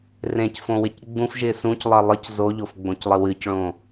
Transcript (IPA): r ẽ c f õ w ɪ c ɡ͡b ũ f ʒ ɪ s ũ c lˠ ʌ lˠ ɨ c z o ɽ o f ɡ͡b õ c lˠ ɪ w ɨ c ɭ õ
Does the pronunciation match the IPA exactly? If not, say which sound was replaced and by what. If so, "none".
ɽ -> ʎ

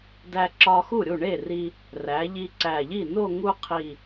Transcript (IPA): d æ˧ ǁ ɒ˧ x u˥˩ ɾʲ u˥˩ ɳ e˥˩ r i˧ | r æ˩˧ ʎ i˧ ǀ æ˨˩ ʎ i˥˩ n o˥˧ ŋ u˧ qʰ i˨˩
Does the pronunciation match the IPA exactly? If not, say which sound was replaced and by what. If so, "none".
none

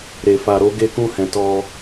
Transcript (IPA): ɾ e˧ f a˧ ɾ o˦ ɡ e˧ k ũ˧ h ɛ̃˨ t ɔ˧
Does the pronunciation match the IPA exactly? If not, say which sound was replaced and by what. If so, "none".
none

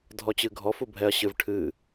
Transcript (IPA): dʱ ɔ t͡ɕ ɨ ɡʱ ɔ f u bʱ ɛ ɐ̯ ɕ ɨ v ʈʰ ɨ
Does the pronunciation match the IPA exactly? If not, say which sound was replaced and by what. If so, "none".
none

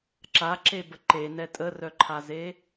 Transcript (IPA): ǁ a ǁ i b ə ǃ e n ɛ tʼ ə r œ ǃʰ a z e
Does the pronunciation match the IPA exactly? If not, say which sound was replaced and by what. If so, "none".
i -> e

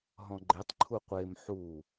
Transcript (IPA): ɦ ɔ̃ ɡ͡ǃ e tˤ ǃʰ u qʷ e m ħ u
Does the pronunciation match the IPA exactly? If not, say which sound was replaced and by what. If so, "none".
none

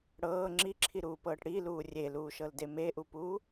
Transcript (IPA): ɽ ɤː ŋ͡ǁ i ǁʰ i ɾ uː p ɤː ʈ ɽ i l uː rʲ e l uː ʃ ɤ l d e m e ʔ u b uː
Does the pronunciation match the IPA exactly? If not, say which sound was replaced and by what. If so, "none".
b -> p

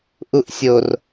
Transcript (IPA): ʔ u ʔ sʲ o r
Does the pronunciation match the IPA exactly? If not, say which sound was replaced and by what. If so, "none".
none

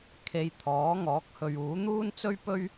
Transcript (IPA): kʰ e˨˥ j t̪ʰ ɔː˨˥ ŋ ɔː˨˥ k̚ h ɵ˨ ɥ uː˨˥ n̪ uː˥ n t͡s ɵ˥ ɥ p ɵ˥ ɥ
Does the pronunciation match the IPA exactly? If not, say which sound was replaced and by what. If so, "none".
e˨˥ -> e˨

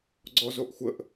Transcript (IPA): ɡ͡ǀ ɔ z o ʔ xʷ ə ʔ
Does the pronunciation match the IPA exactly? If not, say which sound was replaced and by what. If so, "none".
none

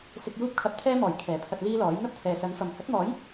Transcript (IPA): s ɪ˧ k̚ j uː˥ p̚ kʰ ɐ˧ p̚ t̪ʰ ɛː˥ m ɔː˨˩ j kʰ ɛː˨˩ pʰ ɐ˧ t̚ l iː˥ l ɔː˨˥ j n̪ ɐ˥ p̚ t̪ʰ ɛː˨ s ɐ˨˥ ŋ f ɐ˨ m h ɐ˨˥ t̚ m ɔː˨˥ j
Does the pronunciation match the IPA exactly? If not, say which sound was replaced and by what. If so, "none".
none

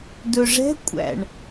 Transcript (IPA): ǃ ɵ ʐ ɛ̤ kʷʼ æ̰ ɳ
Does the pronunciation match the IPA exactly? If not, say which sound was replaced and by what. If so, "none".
ǃ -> d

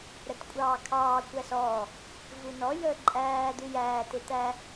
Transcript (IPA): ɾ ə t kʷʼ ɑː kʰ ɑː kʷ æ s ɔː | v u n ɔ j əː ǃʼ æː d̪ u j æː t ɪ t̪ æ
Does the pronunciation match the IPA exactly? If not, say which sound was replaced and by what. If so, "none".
none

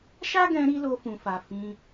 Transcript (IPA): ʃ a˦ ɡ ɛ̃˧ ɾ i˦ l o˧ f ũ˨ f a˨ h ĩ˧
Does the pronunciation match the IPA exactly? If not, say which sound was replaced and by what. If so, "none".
h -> f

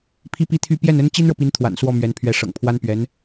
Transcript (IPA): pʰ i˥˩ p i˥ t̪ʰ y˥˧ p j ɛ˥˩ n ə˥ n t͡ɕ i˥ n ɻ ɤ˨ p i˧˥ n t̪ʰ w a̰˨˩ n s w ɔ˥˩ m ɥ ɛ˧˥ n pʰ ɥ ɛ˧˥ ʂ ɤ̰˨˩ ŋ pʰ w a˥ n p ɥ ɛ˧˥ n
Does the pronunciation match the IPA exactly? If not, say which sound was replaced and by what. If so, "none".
none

